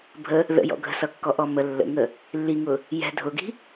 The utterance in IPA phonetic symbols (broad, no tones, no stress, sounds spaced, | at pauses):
bʱ ə | ð ə̰ j ɔ̰ ɡʱ ə̤ s ʌ kː ɔ ʔ ɔ m ə lː ə̰ ŋ ə | lː i ŋ ʊ | j ɛ̤ dʱ ʊ ɡ i̤